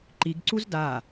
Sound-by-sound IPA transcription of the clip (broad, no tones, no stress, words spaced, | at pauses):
ǃiɡǀuz da